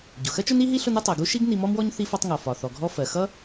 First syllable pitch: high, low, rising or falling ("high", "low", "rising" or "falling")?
low